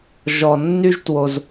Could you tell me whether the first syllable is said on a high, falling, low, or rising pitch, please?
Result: low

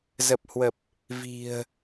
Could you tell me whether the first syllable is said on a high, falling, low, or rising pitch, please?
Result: low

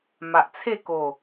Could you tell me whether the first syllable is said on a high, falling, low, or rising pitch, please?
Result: low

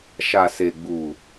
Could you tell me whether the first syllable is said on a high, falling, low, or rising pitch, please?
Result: low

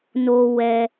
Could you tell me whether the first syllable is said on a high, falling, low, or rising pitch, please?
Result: low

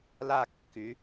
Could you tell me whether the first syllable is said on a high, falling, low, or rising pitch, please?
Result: falling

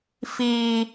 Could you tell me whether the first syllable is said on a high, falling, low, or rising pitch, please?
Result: high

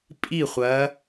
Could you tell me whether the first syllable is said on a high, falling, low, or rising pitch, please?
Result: falling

